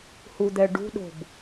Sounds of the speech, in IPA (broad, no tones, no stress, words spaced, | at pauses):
hud̪ɛ ɖṳɗo̤b